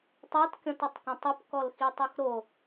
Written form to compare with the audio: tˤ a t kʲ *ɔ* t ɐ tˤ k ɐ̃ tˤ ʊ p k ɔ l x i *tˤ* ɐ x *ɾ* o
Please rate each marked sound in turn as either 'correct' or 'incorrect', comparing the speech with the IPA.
incorrect: ɔ̃, correct, correct

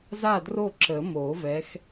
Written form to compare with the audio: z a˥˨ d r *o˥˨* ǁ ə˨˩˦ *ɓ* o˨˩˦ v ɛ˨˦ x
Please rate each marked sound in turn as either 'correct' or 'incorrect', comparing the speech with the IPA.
correct, incorrect: m

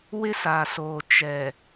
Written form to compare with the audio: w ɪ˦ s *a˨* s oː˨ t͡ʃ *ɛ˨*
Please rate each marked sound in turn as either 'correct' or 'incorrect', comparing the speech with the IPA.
correct, correct

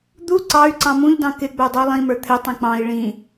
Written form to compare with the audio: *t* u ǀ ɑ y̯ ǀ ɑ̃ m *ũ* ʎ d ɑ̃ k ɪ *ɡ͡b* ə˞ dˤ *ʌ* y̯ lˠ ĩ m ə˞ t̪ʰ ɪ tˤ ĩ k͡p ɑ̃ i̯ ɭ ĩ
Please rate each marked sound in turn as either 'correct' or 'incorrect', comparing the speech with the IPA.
incorrect: d̪, correct, correct, correct

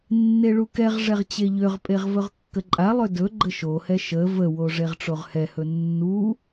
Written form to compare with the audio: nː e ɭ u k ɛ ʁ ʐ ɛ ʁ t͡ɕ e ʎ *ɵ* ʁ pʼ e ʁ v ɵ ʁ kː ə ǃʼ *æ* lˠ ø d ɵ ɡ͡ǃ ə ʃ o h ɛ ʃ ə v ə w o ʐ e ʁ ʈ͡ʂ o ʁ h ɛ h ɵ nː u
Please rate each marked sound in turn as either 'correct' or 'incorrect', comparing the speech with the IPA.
incorrect: ø, incorrect: a

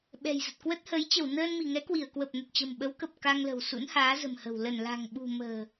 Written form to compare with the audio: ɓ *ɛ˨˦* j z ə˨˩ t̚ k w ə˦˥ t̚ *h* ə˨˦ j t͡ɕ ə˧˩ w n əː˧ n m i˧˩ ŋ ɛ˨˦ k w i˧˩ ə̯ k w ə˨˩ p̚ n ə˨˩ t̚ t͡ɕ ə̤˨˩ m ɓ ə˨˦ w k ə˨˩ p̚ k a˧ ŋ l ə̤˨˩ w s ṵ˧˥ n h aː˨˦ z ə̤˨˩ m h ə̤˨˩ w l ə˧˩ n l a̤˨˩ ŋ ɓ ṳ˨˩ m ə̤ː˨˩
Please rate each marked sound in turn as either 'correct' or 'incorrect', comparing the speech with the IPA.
incorrect: ɛ̤˨˩, correct

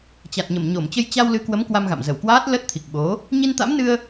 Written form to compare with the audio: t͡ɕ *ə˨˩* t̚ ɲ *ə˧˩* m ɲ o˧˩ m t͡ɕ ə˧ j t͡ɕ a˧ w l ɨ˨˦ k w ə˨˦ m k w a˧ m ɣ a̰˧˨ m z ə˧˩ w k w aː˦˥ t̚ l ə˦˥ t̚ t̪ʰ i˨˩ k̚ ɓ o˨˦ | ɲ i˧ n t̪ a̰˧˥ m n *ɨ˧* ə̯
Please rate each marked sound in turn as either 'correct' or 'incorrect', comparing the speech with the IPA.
incorrect: a˨˩, correct, correct

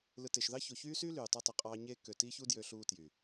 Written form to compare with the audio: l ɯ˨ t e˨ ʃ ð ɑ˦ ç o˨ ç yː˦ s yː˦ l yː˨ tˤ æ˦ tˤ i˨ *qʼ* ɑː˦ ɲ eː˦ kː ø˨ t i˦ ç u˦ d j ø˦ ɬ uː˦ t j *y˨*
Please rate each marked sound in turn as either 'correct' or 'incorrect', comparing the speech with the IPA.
correct, correct

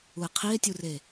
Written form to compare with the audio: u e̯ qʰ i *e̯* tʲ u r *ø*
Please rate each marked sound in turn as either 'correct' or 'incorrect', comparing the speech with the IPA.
correct, incorrect: e

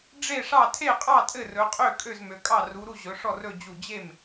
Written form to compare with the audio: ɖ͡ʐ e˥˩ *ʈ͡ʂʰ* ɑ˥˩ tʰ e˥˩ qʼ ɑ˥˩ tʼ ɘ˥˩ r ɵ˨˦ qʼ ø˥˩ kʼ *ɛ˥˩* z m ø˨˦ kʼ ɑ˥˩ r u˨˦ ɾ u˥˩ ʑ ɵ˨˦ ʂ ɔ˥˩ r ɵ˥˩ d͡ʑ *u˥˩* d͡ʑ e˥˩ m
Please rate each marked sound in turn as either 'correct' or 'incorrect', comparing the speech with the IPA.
incorrect: ʂ, incorrect: ø˥˩, correct

